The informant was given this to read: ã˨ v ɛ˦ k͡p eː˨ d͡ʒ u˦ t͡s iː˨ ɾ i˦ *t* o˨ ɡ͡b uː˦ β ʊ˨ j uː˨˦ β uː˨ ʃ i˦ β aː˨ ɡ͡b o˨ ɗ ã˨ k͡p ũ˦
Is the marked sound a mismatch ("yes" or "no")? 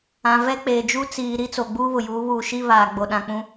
yes